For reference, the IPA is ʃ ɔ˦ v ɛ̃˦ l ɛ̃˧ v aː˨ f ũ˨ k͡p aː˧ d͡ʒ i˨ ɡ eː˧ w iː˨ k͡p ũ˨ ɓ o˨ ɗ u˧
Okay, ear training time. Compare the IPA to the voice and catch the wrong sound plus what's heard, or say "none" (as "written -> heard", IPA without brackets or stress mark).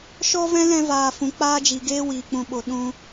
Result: u˧ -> ũ˧